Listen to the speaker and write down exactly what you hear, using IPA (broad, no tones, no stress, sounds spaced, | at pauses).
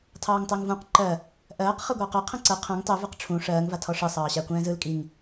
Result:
tʰ ɑː ŋ tˤ ɜ ŋ v ũ q ǃ ɜ | ʔ ɜː q χ ɯ ɡʷ ɑː q ɜ qʰ ɛ̃ ǀ ɜ qʰ ɛ̃ ŋ tˤ ɛ v ɯ q ʈ͡ʂʰ ũ ʂ ɜː ŋ v a tʰ ɔ ʂ ɯ sˤ ɑː ɕ a kʷ ɛ̃ː z ɯ l kʼ i ŋ